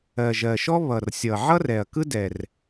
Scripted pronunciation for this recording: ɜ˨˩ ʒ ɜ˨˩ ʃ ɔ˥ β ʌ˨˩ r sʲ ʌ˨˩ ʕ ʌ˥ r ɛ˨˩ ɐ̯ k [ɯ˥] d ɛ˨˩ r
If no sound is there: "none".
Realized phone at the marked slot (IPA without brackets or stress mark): ɯ˥